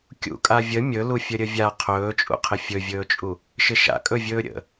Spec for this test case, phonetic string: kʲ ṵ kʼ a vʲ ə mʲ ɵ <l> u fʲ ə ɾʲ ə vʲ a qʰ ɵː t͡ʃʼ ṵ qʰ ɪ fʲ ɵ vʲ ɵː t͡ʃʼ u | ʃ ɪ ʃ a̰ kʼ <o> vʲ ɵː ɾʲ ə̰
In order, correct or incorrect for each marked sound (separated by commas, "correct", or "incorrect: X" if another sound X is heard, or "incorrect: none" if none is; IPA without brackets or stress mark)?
correct, incorrect: ɵ